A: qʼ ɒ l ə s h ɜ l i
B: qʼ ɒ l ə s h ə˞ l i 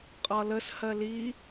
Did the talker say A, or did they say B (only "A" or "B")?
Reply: A